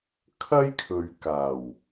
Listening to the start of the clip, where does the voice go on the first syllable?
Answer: high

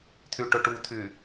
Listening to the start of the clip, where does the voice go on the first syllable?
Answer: low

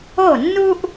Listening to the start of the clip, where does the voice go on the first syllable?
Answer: falling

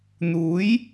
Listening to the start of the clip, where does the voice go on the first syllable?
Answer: rising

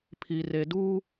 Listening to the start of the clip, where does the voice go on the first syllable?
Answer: low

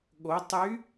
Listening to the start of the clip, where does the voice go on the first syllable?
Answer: rising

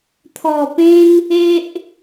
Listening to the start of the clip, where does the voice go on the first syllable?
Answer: low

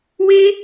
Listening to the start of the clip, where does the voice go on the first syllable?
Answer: high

